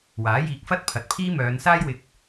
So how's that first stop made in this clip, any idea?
plain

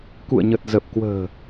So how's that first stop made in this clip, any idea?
plain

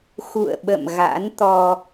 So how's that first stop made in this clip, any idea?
implosive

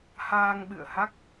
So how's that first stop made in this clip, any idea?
implosive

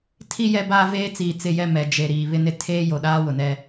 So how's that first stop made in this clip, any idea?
aspirated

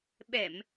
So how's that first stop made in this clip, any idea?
implosive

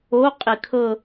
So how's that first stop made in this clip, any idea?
ejective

